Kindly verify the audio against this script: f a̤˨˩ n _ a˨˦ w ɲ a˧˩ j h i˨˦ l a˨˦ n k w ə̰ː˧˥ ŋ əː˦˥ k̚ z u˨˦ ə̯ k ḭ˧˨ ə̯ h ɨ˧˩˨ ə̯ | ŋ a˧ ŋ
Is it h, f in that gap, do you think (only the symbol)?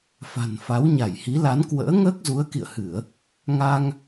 f